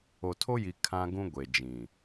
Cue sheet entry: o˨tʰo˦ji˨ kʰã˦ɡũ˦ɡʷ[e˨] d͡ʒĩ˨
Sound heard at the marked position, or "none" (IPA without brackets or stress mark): e˨